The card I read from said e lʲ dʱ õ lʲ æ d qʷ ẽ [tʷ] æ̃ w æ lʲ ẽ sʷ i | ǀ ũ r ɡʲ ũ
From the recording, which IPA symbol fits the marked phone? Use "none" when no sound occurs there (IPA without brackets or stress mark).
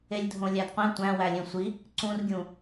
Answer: tʷ